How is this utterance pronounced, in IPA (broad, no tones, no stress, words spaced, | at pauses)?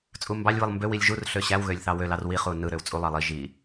t͡sʼumbɑlʲβɯlˠ mbøwilʲ ʒurɬø ɕæwɣølʲ θɑwølɑr wiχu nɯɾøw t͡sʼulˠɑ lˠi ʒi